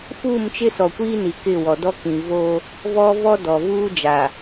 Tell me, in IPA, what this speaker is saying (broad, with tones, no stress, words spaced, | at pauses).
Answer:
fuː˦˨mt͡ʃɪ˦sɔ˨kʷiː˦ ni˨kɪ˦˨ wɔ˨dɔ˦kĩ˨ vo˦ | vɔ˦vɔ˦ dɔ˨vuː˦d͡ʒa˨